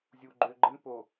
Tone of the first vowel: low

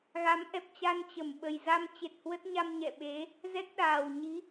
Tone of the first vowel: rising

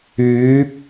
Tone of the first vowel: rising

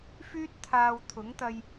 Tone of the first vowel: high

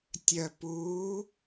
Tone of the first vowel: low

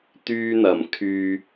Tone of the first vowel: high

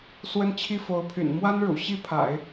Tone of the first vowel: falling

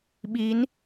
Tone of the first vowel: rising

